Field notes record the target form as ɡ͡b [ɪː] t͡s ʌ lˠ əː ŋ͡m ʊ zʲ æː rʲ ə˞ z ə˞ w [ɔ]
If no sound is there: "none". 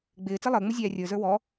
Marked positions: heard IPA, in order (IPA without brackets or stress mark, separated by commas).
ɪː, ɔ